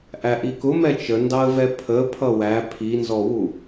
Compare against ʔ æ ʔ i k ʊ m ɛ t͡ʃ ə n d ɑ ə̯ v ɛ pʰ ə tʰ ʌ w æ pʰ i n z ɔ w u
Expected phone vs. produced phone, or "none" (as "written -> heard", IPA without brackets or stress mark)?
tʰ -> pʰ